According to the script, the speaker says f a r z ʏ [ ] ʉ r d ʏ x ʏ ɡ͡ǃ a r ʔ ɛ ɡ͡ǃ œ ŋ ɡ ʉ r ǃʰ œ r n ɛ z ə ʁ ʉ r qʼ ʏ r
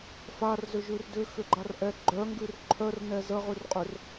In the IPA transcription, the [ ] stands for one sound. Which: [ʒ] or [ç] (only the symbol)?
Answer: ʒ